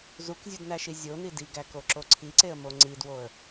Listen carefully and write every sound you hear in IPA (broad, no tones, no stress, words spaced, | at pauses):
zukzʲudnæʃi zʲoni diɡækoǁo ǀʰiǀeə̯mo ŋ͡ǀidwoə̯